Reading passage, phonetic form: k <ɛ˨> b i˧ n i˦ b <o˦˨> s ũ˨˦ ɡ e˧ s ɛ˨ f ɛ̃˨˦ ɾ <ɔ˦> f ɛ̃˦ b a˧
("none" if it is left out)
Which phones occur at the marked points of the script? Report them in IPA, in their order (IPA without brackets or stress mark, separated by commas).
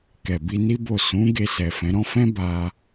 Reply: ɛ˨, o˦˨, ɔ̃˦